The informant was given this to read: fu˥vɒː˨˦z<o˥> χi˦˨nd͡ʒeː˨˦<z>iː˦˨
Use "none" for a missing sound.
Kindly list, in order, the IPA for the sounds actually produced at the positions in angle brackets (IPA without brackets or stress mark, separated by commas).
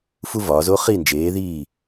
o˥, ð